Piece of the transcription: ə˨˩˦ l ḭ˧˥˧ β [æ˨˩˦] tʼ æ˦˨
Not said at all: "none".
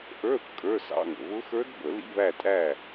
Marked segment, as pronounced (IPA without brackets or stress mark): æ˦˨